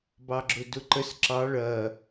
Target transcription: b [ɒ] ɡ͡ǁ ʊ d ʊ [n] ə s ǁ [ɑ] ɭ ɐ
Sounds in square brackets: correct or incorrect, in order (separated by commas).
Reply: incorrect, incorrect, correct